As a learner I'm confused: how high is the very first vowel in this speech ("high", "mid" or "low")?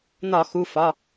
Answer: low